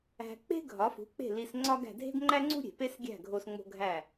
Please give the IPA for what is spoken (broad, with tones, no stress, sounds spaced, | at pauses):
æ̤˧ k͡p e̤˥ ɡʱ ɒ˩˥ f ṳ˩˥ k͡p e̤˥˩ l i˧ s ŋ͡ǀ ɒ˥ ɡ æ̤˧ dʱ e̤˥ ɡ ŋ͡ǃ æ˥ ŋ͡ǀ ṳ˥ ɾʲ e̤˩ p e˥ s ɡʲ æ̤˥˩ ɡʱ o˥ s ŋ͡m o̤˥ ɡʱ æ˥˩